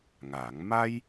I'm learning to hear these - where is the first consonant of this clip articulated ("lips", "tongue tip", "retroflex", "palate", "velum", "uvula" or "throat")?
velum